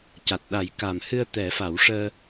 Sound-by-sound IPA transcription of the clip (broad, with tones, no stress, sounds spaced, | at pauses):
c a˨˩ t̚ ɗ a˨˩˦ j k a˨˩ m h ɨ˧ ə̯ t̪ ɛ˨˩˦ f a˨˩˦ w ʂ əː˧